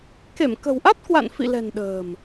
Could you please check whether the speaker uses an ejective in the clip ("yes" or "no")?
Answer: no